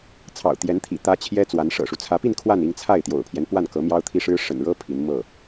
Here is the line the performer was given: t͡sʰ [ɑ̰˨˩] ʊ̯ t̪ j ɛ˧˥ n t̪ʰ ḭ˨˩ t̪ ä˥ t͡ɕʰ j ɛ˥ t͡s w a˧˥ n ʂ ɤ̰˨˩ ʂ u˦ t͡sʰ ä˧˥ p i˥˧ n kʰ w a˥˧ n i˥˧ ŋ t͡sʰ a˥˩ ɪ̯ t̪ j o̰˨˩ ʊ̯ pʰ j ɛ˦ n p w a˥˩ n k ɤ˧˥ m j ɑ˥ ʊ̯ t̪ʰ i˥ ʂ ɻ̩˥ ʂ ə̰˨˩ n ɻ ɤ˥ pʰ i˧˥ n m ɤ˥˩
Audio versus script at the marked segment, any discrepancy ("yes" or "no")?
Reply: no